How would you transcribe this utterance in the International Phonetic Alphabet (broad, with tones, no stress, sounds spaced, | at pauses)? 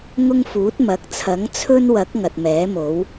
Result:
ŋ ʊ˥ ŋ f uː˨˥ t̚ m ɐ˨˥ k̚ t͡sʰ ɐ˨˥ ŋ t͡sʰ ɵ˥ n w ɐ˨˥ k̚ ŋ ɐ˨ t̚ m ɛː˨˥ m o˨˥ w